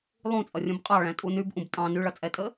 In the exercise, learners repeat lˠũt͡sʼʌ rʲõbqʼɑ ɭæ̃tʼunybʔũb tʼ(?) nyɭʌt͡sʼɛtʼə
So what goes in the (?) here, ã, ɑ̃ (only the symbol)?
ɑ̃